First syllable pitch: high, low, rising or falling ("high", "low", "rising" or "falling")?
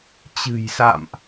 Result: low